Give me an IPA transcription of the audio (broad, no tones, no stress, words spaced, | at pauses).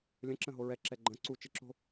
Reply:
lʲə̃ǁə̃ ɦoɹɛǁɛ ɡ͡ǃə̃ ǀu t͡ʃɪǁo̤